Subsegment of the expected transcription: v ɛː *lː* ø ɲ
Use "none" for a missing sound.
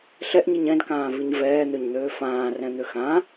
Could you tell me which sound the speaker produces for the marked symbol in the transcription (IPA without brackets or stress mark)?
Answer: n̪